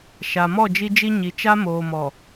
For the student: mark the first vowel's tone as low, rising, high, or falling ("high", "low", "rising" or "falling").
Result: low